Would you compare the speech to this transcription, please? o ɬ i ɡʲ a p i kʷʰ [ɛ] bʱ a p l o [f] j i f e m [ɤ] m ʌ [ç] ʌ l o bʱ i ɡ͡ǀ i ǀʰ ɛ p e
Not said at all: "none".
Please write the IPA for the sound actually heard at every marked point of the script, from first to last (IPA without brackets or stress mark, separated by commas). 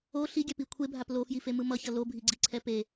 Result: e, f, ɯ, ç